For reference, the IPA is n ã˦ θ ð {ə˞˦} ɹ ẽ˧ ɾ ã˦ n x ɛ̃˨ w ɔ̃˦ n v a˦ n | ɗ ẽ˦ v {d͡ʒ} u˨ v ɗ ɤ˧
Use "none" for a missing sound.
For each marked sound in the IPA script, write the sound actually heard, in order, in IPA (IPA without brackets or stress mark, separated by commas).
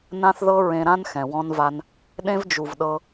ɤ˦, d͡ʒ